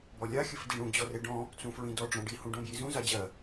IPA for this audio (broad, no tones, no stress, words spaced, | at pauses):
bɔlʲa xʲɘfdiɳũ d͡ʑɔreɖɔ̃ | t͡sũfɹĩdɔ ɖ͡ʐɔ̃ɖi hũɖõbjizũ zad͡ʑɜ